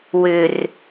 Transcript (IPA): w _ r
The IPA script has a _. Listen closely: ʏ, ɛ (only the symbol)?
ʏ